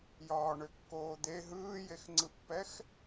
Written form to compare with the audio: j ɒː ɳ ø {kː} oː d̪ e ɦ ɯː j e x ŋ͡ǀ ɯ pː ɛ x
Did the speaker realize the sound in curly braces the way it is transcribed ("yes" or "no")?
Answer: yes